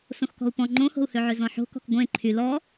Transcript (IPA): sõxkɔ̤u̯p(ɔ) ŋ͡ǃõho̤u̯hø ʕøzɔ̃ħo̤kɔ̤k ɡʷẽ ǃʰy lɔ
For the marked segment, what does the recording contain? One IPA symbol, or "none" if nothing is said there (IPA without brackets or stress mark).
ɔ̃